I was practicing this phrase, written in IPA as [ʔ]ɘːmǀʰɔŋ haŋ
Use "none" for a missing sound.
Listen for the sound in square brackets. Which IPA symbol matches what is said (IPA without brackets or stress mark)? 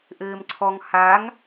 ʔ